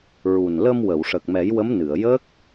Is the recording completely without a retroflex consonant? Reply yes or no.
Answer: no